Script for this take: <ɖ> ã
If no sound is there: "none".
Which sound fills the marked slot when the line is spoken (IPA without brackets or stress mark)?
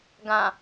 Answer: ɡ